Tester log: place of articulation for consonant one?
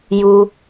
palatal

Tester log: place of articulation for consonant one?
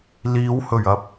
alveolar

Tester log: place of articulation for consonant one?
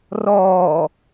alveolar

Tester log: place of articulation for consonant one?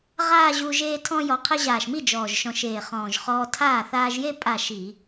uvular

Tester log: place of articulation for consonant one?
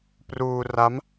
labial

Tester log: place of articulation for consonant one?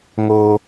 velar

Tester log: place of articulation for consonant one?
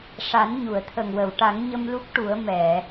retroflex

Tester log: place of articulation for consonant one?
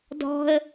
alveolar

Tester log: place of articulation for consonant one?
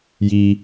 palatal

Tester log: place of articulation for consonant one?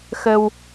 velar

